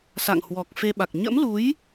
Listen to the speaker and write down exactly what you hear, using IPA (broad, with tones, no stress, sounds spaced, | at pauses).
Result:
s a̰˧˨ ŋ h w ɔ˨˩ k̚ f e˧ ɓ a˨˩ k̚ ɲ ə̰˧˥ m l u˨˦ j